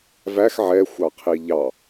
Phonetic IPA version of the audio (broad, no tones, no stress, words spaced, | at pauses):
væx ʕɛxʷɑqʰi ʎɑ